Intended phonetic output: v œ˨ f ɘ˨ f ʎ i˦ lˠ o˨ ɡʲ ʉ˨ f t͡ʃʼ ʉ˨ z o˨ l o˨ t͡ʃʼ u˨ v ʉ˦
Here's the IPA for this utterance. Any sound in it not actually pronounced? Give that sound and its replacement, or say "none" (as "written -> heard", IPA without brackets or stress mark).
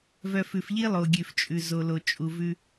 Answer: ɘ˨ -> ʉ˨